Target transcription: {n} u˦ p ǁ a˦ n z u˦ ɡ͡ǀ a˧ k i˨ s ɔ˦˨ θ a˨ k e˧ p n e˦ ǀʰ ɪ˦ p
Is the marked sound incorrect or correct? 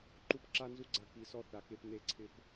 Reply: incorrect